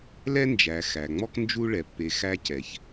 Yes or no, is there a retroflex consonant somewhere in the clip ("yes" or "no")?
yes